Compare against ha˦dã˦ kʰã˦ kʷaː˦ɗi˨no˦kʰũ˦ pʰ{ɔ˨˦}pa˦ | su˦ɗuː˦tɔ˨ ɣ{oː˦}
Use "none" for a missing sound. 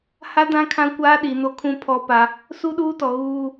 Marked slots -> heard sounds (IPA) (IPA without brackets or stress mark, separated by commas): ɔ˦, uː˦